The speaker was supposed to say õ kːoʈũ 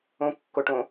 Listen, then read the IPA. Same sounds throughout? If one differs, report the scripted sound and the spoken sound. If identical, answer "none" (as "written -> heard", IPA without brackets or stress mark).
ũ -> õ